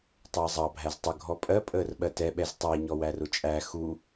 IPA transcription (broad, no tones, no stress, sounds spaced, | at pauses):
tˤ əː zˤ ɑ bʱ æ z tˤ ə ɡʱ ɔ pʼ ɜ pʼ əː r ɓ ɜ t ɛ ɓ ɛ z tˤ æ ɲ ɔ w æ r ʊ t͡ʃʼ æ x u